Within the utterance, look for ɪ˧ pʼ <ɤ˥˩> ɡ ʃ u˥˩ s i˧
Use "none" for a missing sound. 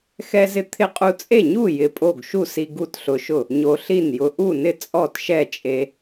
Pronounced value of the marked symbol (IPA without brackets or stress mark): o˥˩